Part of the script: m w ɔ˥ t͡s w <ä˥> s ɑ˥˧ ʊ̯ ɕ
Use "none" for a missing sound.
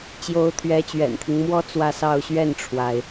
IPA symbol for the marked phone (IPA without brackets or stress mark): ä˥˧